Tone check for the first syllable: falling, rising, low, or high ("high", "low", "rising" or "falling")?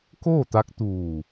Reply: falling